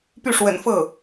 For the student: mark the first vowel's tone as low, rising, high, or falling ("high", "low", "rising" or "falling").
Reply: falling